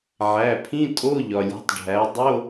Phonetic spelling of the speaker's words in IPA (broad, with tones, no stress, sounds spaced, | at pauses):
ʕ æ˩˧˩ pʰ ĩ˧˥˧ tʼ o˧˥˧ ʎ ɒ˩ lʲ e̤˩˥ tˤ ɖʱ æ˩˥ dˤ o˧˥˧